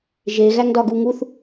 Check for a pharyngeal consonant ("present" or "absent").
absent